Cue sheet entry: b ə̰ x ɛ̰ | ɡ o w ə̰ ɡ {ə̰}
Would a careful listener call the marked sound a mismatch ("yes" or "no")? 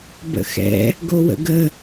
yes